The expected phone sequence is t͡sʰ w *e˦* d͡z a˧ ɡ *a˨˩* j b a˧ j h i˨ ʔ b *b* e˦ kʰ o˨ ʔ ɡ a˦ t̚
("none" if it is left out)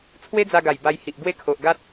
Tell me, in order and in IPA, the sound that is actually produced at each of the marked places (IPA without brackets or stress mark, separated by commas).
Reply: e˦, a˨˩, w